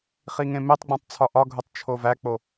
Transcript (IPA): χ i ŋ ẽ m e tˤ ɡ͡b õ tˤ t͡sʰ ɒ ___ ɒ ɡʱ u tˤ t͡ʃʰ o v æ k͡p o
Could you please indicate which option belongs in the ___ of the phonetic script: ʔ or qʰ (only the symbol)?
ʔ